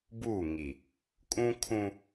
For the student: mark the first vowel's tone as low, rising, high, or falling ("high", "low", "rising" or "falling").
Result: falling